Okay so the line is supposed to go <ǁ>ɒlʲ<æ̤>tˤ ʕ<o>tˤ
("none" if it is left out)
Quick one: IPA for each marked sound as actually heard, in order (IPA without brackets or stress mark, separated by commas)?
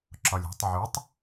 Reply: ǁ, æ̤, u